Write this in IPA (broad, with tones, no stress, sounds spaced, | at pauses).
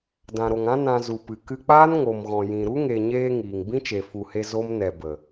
d ã˨ ɾ o˨ ŋ ã˦ n ã˧ z u˨ p ɨ˨ k ɨ˧ k͡p aː˦ n ŋ o˨ m ɣ ɔ̃˨ j ĩ˨ ɾ u˦ ŋ e˨ ɲ eː˧ ŋ iː˨ ŋ b ĩ˦ t͡ʃ e˨ f u˨ h e˧ z o˦ m n ɛ˨ b ə˨